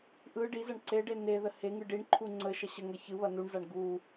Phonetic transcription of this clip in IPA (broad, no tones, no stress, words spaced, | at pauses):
ʔɯ ɖizɐɳ ǀeɖe neðə heŋɯ ɖiɳǃʰu ŋ͡ǀə ʃɐɕəŋɐ çɯβɐ nuɳzaɳ ɡu